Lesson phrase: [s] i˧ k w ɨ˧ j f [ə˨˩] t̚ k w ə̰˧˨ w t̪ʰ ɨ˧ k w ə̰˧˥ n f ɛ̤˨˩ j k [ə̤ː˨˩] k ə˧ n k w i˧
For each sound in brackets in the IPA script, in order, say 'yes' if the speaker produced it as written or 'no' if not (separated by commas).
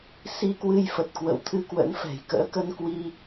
yes, yes, no